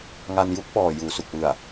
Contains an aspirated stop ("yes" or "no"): no